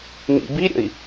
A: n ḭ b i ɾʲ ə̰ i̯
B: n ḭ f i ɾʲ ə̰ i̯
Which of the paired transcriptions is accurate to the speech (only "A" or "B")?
A